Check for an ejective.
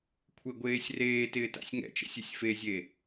absent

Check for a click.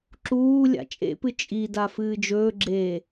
present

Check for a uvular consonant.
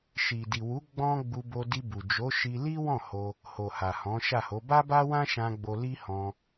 absent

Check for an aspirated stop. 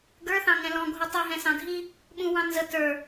absent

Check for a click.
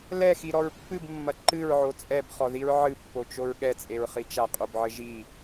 present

